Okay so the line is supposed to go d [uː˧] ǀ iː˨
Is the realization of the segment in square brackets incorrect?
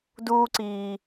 no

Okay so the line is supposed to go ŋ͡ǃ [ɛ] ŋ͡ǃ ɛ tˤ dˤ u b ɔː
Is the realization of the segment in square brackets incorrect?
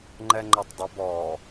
no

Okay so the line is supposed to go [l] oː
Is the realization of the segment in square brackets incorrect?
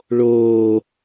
yes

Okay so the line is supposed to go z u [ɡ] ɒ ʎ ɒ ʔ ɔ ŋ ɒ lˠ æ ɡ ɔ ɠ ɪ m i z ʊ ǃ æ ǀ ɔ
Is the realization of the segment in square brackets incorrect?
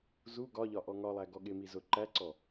no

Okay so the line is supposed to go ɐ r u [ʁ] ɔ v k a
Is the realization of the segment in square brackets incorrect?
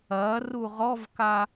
no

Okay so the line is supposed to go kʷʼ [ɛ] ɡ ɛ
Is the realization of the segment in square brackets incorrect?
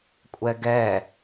no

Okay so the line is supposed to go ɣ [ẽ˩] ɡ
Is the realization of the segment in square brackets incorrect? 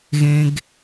no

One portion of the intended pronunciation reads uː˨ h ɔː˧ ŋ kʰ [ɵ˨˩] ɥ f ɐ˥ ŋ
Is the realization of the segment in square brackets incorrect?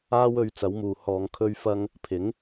yes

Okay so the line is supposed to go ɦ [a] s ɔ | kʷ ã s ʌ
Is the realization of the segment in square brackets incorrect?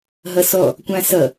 yes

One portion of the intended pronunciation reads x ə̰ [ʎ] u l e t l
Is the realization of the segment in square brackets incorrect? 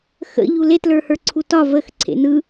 no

